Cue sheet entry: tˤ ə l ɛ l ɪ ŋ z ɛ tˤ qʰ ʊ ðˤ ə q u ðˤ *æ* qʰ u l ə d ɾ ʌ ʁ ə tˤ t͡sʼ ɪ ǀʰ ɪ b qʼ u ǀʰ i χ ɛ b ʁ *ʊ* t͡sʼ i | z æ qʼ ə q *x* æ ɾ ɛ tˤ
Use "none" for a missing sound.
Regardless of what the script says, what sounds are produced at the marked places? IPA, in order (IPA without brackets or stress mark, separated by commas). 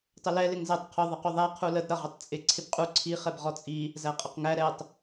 æ, ɔ, ŋ